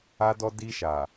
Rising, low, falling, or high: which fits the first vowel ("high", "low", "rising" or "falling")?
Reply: high